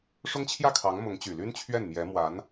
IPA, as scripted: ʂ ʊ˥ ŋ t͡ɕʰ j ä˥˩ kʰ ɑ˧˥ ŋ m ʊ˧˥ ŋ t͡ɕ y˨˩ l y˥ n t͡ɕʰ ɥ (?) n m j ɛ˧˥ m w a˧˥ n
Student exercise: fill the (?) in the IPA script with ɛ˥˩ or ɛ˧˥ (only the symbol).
ɛ˥˩